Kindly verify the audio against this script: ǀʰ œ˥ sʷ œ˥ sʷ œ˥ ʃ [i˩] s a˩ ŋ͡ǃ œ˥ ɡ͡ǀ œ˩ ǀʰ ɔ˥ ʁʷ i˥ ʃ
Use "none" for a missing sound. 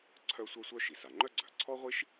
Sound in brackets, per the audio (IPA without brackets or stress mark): i˩